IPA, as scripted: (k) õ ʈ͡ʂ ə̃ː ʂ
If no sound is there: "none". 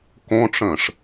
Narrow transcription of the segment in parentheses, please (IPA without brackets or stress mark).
k